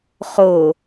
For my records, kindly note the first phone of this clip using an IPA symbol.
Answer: χ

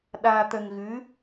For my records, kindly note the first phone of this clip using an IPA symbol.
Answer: ɗ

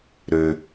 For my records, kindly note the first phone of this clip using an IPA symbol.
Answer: ɾ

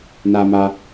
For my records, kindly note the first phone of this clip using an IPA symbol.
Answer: n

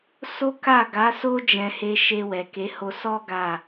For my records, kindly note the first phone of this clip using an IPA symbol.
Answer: s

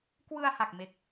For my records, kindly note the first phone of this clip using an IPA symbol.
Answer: k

